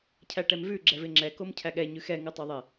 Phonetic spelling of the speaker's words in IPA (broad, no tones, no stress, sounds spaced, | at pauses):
cʰ æ ʈ ɛ m v ʉ ɡ͡ǁ ɛ v ɪ ŋ͡ǁ ɛ k o m cʰ æ ɠ ɛ ɲ ʉ x ɛ ŋ ʉ tˤ o ðˤ e